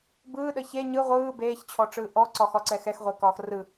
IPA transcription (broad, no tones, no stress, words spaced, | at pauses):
bɯːɗə çe ɲɯ ʁʷɯː beːçt͡ɕʰɔʈ͡ʂɯː ʔɔǀɒxɒǀɛ xɛxʁʷekɒːx rɯ